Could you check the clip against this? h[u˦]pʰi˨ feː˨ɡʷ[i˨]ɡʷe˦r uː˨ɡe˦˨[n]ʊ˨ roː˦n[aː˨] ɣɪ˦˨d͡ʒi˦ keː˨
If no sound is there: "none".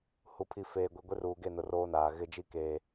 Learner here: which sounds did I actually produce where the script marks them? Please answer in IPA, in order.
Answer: u˨, i˨, n, aː˨

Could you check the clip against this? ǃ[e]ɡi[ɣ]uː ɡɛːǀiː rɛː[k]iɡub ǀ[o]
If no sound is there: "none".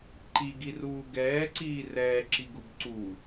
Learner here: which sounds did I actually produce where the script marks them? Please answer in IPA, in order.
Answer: i, r, ǁ, u

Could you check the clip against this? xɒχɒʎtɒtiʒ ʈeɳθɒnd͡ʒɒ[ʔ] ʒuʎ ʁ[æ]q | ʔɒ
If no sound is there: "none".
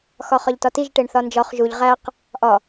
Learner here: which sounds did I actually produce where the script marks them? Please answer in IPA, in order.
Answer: χ, æ

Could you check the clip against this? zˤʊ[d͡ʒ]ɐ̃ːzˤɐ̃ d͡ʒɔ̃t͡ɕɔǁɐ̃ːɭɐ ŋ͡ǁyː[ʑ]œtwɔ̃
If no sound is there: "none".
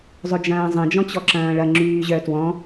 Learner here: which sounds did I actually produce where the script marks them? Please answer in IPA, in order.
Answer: d͡ʒ, ʑ

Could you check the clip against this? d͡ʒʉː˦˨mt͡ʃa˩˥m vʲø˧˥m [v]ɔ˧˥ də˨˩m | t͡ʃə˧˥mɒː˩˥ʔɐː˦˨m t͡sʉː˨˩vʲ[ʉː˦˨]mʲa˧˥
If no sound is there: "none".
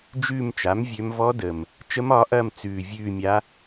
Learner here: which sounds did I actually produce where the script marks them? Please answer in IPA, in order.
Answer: v, ʉː˦˨

